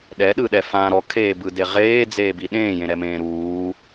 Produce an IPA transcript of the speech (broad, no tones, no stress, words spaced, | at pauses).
ɗɛɗɯɗɛ fã ɾɔkʰeːbɯde ʁeːd͡zeːbi ɗẽːjẽɾɛmẽː ɾuː